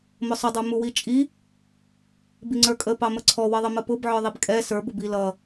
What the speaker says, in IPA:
m ʊ sˤ ʊ dˤ ə˞ m u w i t͡ʃʼ i | b i ŋ͡ǀ ə˞ kʼ ə p ɑ m ə ǀʰ ɔ w ʌ ðˤ ə m ə p ʊ b ʕ ə˞ ðˤ i b kʼ ɛ s ə˞ b ʊ b i l ʌ

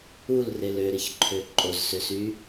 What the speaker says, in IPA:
u l r e l ø ɾ i ç ǃʰ ø ǃʼ o z s ø s y

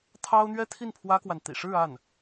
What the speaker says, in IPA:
t̪ʰ ɑ˥ ʊ̯ n̪ ɥ ɛ˥ t̪ʰ i˥˩ n pʰ w ä˥ k w a˨ n t̪ ḭ˨˩ ʂ ɻ̩˥˧ a˥˩ n

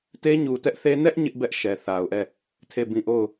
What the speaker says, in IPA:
t e˦ ɲ u˨ t ɛ˦ ʔ θ e˦ n ɛ˦ ʔ ɲ ɪ˦ ʔ b ɛ˦ ʔ ʃ ɛ˨ θ a˨ ʊ̯ ʔ ɛ˦˨ | tʰ e˦˨ b ĩ˦˨ ʔ o˦˨ ʊ̯

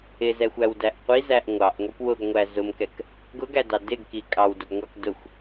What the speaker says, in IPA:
ɪ z ɛ xʷ æ w d æ ʔ qʷ i z æ ʔ ŋʷ ɑ ʔ ŋʷ i p w ʊ ɡ ŋʷ æ z ʊ m k ɛ k | ɡ ʊ ɡ æ d ɑ d ɪ ɡ k i kʼ ɑ w d ʊ ɡ ŋʷ ɑ k d ʊ xʷ

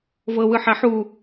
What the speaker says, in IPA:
v ɤ w ɯ ħ a ħ u

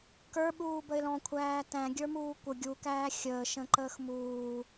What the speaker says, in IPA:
k ə˞ ɓ uː b ə ɪ̯ l ɔ̃ kʷʰ æː t æ̃ ɡʲ ə˞ m uː kʷ ə ɡʲ u k æː xʲ əː ʃ ə̃ ǃ əː x m uː

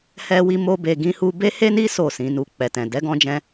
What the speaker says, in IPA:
h ɛ˦ w i˦ m o˦ b e˧ ɡ ĩ˦ h u˦ b e˦ h e˦ n i˦ s o˦˨ s ĩ˧ n u˧ k͡p ɛ˨ t ɛ̃˨ d ɛ˨˦ ɡ ɔ̃˧ d͡ʒ ɛ̃˧

